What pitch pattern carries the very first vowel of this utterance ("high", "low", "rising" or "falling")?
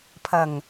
low